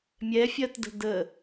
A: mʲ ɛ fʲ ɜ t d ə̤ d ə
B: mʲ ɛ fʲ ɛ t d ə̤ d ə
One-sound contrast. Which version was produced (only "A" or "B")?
A